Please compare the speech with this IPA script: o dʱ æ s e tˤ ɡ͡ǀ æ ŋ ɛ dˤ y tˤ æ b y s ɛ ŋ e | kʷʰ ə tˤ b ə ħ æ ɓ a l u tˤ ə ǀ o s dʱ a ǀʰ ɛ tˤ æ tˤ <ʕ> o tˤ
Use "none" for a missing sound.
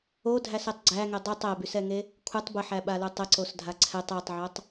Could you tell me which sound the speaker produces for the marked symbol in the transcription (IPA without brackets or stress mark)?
ʕ